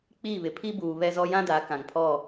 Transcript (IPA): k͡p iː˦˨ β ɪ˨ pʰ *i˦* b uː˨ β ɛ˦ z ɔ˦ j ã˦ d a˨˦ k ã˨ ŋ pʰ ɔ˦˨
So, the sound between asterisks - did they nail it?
yes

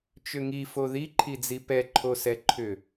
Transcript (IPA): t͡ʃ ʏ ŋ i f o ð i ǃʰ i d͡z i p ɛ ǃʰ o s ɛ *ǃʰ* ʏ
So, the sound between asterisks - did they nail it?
yes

